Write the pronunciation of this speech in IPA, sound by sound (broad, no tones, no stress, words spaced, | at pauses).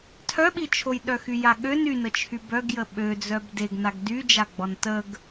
tʰœɓit͡ʃʰoj ɗœxyjaɠøn ynət͡ʃʰy bœɡjə ɓø d͡zœbdeɡnaɡ dyd͡ʒa ɡ͡bɔntəɡ